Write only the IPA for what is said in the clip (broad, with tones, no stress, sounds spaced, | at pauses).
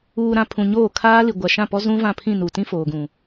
uː˨ ɾ ã˨ pʰ ũ˨ ɲ oː˦˨ kʰ aː˦ l i˨ ɡʷ a˨ ʃ ã˦˨ p ɔ˦ z ũ˦ v ã˦˨ pʰ ĩ˦˨ n u˨ t ĩ˦ f oː˨ ɡ ũ˨